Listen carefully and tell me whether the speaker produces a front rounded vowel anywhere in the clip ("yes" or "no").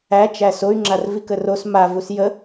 yes